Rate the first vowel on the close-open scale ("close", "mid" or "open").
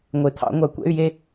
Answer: mid